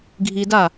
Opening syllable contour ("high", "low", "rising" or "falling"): low